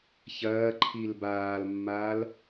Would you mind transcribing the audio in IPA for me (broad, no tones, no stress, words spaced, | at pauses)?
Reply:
çɐːǃʰil baːlmːaːl